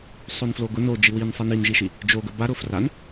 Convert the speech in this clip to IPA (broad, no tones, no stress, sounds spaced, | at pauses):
sˤ o n f l o ɡ ʊ n o d͡ʒ i w i n sˤ i n i n ʒ i ʃ i | d͡ʒ o ɡ ə b a ɾ ʊ f r a n